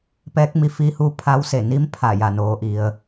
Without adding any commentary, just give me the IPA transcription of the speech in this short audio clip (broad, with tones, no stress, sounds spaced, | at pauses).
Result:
p ɛː˧˥ k̚ m i˧ f iː˧ h uː˧ pʰ a˧˥ w s e˧˩ n i˧˥ m pʰ a˧˩ j a˧˩ n oː˩˧ ʔ i˩ ə̯